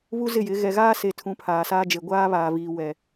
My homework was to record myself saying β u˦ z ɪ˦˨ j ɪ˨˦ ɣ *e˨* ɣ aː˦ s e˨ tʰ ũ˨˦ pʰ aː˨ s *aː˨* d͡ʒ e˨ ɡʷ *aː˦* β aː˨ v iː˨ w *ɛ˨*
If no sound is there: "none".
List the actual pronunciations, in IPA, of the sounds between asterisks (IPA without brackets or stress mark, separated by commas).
ɛ˨, aː˦, aː˦, ɛ˨